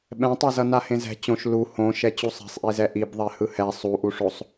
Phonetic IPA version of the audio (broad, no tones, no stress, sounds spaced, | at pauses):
ɓ ɛ̃ tˤ e z ʌ n a h ẽ z ɛ̤ t͡ɕ õ ʃ l u h õ ʃ ɛ t͡ɕ u sˤ ɛ̤ sˤ ʔ i z ɛ ʔ i b ðˤ ɛ h ɯ h ɛ sˤ u ʔ u ʂ o sˤ